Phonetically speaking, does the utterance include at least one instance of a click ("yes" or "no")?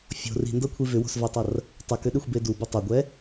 no